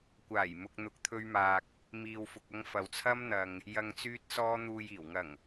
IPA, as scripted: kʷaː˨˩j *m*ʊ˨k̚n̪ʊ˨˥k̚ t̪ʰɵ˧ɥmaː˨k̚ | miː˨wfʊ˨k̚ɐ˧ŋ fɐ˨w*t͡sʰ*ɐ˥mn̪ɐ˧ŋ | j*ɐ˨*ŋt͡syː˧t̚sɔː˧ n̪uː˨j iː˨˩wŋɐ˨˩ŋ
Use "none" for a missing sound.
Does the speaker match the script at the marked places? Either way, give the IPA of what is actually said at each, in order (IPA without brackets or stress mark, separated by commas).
m, t͡sʰ, ɐ˨